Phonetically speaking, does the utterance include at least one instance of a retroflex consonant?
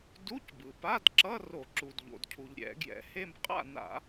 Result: no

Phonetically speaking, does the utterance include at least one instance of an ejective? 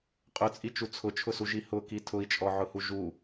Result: yes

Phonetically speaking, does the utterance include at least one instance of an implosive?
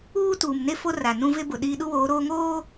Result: yes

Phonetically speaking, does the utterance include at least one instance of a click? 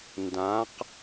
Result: no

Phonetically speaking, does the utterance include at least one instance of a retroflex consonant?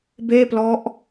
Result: no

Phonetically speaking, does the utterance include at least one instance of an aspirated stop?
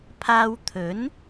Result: yes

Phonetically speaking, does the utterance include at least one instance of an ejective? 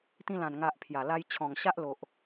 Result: no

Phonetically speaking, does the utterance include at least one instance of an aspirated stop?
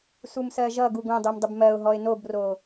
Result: no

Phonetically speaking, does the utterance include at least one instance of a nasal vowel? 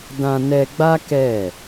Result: yes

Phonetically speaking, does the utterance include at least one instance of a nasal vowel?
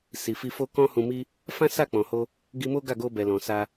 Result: yes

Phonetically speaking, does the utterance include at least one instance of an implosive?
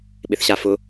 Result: yes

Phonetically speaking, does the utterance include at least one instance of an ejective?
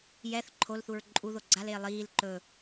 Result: yes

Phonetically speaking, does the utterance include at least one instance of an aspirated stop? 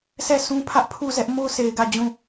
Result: yes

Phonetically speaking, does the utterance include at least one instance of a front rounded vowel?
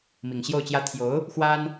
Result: no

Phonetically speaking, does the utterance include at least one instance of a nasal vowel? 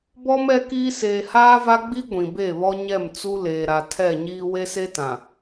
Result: yes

